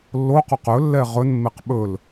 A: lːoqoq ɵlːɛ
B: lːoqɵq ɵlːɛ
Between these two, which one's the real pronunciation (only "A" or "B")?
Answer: A